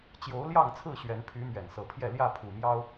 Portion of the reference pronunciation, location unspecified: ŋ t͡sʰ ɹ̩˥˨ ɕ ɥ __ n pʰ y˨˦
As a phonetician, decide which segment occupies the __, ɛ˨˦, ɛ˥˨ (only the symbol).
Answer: ɛ˨˦